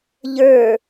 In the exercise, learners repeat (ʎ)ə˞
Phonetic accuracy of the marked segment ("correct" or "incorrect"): correct